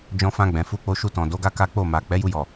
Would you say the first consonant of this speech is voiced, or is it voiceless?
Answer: voiced